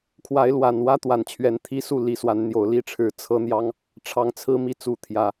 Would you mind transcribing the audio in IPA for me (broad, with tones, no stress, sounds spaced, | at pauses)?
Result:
kʰ w a˨˦ ɪ̯ l w a˨˩ n w ä˦ t̪ w a˨˩ n t͡ɕʰ ɥ ɛ˨˦ n t̪ʰ i˦ s u˥˨ l i˨˩ s w a˨˦ n n̪ j o˨˩ ʊ̯ l i˥˨ ʈ͡ʂʰ ɻ̩˨˦ t͡sʰ ɤ˦ n̪ j ɑ˦ ŋ | ʈ͡ʂʰ ɑ˨˦ ŋ t͡sʰ ɹ̩˦ m i˥˨ t͡s u˨˦ t̪ʰ j ä˨˦